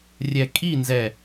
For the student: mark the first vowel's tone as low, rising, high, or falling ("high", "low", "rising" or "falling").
low